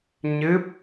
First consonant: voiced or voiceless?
voiced